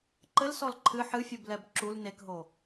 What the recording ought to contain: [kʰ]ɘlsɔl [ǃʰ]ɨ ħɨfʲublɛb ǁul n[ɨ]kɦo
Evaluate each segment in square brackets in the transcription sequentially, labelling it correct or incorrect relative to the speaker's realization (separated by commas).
incorrect, correct, incorrect